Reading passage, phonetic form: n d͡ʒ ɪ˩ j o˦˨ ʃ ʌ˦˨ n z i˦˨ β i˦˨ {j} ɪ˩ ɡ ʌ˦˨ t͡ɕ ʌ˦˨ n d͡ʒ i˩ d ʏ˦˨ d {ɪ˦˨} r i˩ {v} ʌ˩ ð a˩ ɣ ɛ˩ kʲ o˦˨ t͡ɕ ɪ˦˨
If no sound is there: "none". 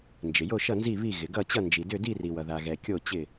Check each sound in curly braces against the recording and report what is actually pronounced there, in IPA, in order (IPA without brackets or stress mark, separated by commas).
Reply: ɣ, i˦˨, w